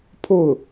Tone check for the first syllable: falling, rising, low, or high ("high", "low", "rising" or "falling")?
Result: falling